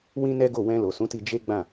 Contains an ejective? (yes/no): no